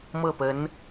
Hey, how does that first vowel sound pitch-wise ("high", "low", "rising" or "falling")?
falling